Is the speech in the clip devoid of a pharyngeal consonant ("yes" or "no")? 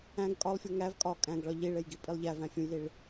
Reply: yes